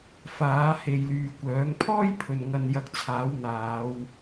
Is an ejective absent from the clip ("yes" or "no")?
yes